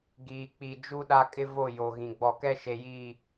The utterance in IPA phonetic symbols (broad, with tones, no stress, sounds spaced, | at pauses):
ɡ iː˨ k͡p i˨ d͡ʒ u˦ ɗ a˦ kʼ ɪ˦ v o˦˨ j o˨ ɣ ĩ˨ ɡ͡b ɔ˨ k ɛ˦ ʃ e˨ j iː˦˨